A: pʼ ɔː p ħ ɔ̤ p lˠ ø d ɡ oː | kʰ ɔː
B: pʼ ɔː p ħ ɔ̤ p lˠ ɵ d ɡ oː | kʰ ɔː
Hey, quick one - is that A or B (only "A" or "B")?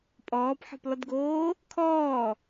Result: B